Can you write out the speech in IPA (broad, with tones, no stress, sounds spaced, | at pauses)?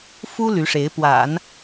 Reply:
f u˥ l y˧˥ ʂ e˧˥ ɪ̯ p w a̰˨˩˦ n